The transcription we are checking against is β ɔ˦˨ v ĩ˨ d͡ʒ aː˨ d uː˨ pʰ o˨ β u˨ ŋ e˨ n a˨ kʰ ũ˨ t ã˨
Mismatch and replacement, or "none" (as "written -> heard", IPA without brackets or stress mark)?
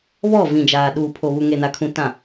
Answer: d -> ɗ